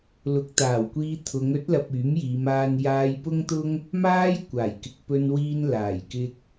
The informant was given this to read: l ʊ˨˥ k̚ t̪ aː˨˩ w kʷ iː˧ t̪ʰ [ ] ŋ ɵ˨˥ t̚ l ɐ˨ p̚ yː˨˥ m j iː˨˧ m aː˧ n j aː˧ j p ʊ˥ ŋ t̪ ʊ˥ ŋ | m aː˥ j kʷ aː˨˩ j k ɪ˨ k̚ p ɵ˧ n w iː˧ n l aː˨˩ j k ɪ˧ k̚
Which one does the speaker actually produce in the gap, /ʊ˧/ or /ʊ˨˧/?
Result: ʊ˨˧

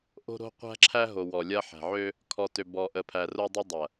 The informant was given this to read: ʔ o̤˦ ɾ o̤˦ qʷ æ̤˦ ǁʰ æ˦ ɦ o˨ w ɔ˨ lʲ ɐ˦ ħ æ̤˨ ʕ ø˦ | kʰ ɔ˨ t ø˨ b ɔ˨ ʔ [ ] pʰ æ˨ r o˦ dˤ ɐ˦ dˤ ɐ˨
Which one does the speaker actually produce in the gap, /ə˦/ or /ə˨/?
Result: ə˨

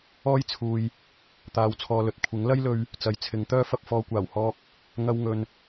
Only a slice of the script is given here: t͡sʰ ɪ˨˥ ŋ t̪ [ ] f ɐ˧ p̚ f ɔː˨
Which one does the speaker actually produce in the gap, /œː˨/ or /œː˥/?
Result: œː˥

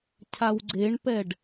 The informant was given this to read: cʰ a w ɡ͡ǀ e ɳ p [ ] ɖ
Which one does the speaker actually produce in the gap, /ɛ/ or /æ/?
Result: ɛ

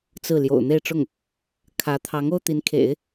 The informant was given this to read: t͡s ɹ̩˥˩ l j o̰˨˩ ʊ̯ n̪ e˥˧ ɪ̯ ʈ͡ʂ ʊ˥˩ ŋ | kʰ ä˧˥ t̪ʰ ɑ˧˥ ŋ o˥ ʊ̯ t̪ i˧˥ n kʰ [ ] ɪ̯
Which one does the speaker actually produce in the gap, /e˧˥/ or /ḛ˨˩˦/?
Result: ḛ˨˩˦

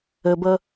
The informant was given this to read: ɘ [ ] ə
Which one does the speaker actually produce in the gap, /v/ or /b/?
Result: b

